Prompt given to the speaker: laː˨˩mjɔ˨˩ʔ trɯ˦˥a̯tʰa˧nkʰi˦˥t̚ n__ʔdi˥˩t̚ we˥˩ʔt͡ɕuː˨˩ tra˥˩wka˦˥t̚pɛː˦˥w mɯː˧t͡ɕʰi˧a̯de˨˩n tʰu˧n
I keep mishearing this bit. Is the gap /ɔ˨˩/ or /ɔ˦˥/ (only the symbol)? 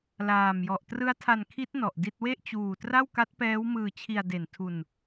ɔ˨˩